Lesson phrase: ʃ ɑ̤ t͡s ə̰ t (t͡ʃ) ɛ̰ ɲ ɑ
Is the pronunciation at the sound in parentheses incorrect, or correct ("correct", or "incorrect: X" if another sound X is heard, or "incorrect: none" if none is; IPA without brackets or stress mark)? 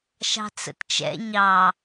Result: correct